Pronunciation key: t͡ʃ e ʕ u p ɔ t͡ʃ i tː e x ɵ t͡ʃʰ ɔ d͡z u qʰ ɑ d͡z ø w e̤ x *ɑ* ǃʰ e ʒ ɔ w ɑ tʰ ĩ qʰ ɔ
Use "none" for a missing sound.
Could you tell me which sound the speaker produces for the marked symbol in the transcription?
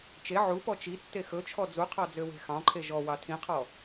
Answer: ɑ̃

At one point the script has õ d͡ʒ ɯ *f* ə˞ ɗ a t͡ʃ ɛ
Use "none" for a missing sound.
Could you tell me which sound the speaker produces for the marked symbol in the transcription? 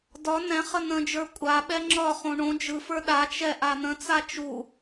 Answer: f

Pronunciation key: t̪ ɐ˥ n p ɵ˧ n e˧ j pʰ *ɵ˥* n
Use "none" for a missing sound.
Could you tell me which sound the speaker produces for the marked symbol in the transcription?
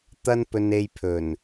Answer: ɵ˨˩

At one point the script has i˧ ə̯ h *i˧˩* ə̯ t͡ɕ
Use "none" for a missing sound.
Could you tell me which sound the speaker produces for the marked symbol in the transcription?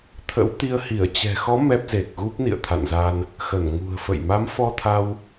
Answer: i˧˩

